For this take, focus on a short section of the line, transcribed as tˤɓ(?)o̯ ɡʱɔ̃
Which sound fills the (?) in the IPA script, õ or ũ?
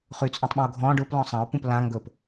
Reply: ũ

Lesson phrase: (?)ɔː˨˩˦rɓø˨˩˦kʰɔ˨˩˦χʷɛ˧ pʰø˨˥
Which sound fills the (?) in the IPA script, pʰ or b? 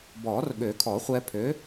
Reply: b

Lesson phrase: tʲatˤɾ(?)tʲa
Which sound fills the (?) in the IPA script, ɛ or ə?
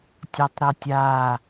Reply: ɛ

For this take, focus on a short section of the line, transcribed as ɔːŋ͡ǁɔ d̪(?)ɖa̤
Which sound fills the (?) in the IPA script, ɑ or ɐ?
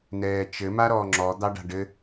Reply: ɑ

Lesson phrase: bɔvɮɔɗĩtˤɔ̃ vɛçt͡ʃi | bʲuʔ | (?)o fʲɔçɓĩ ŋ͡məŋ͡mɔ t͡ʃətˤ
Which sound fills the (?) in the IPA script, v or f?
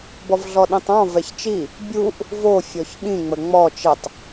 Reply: v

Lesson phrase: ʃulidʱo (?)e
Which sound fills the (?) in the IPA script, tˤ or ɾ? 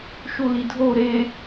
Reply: ɾ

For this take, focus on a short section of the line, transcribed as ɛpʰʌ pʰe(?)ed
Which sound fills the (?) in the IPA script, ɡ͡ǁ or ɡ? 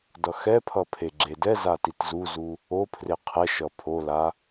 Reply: ɡ͡ǁ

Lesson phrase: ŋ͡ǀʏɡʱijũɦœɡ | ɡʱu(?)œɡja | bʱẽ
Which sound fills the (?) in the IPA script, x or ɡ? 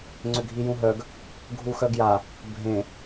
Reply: x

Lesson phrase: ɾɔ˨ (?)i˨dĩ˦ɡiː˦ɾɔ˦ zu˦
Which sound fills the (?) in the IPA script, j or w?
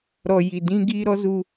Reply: j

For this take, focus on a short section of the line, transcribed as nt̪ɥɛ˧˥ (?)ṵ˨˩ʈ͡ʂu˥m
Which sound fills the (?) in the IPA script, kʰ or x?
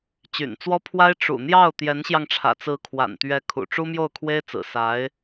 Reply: kʰ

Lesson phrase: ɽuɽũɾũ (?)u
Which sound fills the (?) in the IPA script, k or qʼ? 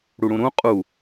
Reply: qʼ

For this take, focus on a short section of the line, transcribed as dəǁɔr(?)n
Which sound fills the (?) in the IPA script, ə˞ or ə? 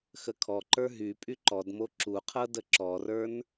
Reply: ə˞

